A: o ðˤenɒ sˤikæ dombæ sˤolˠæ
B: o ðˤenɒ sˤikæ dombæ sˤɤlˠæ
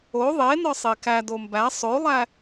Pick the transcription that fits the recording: A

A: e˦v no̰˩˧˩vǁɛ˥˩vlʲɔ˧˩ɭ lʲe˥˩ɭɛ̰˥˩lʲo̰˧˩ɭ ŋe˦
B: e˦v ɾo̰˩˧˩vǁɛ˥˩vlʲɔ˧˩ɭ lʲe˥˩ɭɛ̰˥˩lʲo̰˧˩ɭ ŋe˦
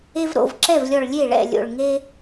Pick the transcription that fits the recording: B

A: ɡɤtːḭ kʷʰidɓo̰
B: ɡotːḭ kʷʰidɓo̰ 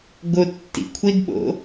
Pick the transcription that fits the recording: B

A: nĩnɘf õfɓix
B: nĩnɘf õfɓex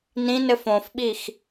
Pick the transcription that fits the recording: A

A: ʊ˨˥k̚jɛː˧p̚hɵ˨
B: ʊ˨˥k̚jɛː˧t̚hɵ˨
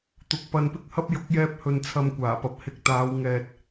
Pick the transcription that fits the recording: A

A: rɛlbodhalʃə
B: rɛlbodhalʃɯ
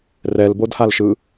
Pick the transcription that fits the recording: B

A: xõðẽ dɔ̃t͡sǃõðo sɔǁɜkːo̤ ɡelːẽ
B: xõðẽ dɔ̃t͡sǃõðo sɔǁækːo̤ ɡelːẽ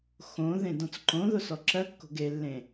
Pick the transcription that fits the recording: A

